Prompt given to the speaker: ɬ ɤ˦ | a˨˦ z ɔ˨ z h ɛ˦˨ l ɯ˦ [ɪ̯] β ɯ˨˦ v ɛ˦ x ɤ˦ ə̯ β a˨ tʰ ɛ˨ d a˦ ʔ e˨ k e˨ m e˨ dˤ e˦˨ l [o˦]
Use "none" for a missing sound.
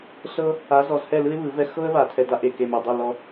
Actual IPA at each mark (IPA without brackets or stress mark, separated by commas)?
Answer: ɪ̯, ɔ˦